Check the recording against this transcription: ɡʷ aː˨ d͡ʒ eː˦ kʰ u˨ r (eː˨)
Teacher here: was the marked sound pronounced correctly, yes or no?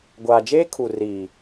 no